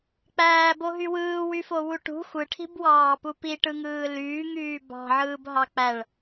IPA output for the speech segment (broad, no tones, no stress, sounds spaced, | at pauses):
k͡p æː b o ɦ y w ɯː w y f o w u ʈ ṳ xʷ ɯ ʈʰ i̤ b w ɑː p u p i ʈ ɯ ŋ ɯː l yː ŋ yː b ɑ̤ ʕ ɯː b ɦ ɑ k͡p æ ɭ